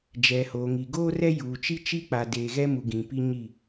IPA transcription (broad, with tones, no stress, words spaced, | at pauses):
d͡ʒɛ˨hoː˨ŋi˨ ɡoː˦rɛ˦ juː˨t͡ʃi˦t͡ʃi˦ k͡pa˨deː˨ɣɛ˦mu˨ ɡĩ˨ pi˦ɲi˦˨